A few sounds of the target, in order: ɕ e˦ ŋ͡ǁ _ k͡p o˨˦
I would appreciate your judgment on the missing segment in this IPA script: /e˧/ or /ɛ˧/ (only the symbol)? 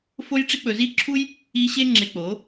e˧